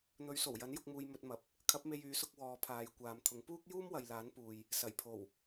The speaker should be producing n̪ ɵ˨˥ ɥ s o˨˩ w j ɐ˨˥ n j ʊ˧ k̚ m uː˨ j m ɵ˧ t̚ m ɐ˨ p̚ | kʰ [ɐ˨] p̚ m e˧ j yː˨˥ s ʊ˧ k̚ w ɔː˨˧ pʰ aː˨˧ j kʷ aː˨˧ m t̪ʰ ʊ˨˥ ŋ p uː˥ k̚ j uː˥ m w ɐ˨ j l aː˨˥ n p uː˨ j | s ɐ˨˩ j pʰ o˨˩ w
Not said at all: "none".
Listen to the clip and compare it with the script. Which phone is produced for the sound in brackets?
ɐ˨˥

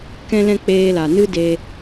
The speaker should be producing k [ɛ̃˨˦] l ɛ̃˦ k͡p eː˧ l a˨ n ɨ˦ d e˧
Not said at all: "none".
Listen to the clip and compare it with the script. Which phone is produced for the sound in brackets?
ɛ̃˦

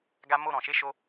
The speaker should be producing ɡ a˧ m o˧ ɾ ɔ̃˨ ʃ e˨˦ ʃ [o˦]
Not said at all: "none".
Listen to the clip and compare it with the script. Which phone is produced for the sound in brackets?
o˧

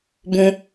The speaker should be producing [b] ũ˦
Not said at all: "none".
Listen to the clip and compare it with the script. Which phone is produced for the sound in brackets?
b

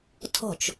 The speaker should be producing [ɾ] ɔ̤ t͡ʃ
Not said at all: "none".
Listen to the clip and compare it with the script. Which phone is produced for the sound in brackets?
tʰ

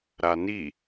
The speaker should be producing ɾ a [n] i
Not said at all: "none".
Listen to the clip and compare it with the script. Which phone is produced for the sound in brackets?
n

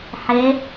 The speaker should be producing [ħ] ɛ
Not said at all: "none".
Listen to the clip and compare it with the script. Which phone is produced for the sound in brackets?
ħ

